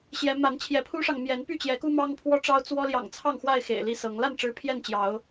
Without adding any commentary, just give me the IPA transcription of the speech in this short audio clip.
ɕ j ɛ˨˦ m a˨˦ n t͡ɕʰ j ɛ˨˦ pʰ u˦ ʂ ɑ˨ ŋ m j ɛ˨˦ n p y˥˨ t͡ɕ j ɛ˨˦ k u˦ m ɑ˦ ŋ pʰ w ɔ˦ ʈ͡ʂ ɑ˦ ʊ̯ t͡s w ɔ˦ l j ɑ̰˨˩ ŋ t͡sʰ ɑ˥˨ ŋ x w a˥˨ ɪ̯ x ḛ˨˩ ɪ̯ l i˥˨ s ɤ˨˦ ŋ l a˥˨ n ʈ͡ʂ ɻ̩˥˨ pʰ j ɛ˥˨ n t͡ɕ j ɑ˨˦ ʊ̯

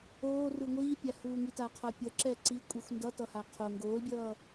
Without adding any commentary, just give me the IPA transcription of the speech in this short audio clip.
oː r ɯ ŋʷ iː pʲ a h uː ŋ i t a qʰ ʌ pʲ ʌ ǁ ɛ ǀ i kʷʼ i xʷ n d ʌ t ʌ h a qʰ o ŋ ɡ oː l bʲ ʌː

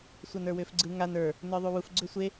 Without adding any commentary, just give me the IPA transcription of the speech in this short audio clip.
sʷ a n ə˞ w ʏː f ɡ͡ǀ ɯ ŋ a n ə˞ | n ə˞ ðˤ u w u f ɡ͡ǀ ʏ sʷ e

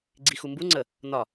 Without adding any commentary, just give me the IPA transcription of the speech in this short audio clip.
ɡ͡ǀ i x u m b u ŋ͡ǀ ə | n ɒ

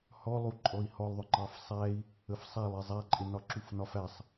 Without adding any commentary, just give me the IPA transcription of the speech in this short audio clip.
h ɔ lˠ u ǃʼ ɔ i̯ h ɔ lˠ ðˤ ʊ ŋ͡ǃ ɑ f sˤ æ i̯ | ə f sˤ æ lˠ i zˤ æ ǃʼ ɪ n ɒ ǁ u f n ɒ f æ sˤ

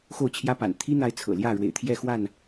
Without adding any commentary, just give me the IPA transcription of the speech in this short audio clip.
x o˥˨ ʊ̯ t͡ɕʰ j ä˦ p a̰˨˩ n t̪ʰ i˦ n̪ a˨˦ ɪ̯ t͡sʰ ɤ̰˨˩ l j ä˥˨ ɻ w ḛ˨˩ ɪ̯ t̪ʰ j ɛ˥˨ x w a˥˨ n

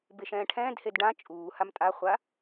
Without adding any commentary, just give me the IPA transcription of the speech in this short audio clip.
b e ʃ ɛ̃ː ʈʰ ɛ̃ː d h e d ɖ ã t͡ʃʼ uː h a m tʼ a χʷ a

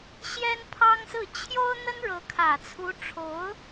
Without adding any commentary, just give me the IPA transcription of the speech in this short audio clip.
ɕ j ɛ˥ n pʰ ɑ˥ ŋ s ɹ̩˥˩ t͡ɕʰ j o˥ ʊ̯ n̪ ə˥ n ɻ ɤ˧˥ kʰ ä˨˩ t͡sʰ u˧˥ ʈ͡ʂʰ o˧˥ ʊ̯

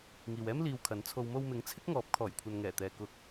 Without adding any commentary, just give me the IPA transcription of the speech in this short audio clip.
ŋ iː˨ w ɛː˥ m l iː˧ w kʰ ɐ˨˥ n t͡sʰ o˨ w m o˧ w m ɪ˨˥ ŋ t͡sʰ ɪ˥ k̚ ŋ ɔː˨˥ p̚ kʰ ɔː˨˩ j kʷʰ ɐ˨ n ŋ ɛː˨˩ t̪ ɛː˨ k ʊ˨˥ k̚

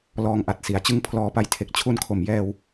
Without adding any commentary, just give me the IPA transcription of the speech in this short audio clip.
l ɔː˧ ŋ ʔ a˨˩ t̚ s i˩˦ a̯ t͡ɕ ɯ˦˥ ŋ pʰ l ɔː˨˩ p a˨˩ j tʰ e˨˩ k̚ t͡ɕʰ u˧ n kʰ o˨˩ m j ɛː˧ w

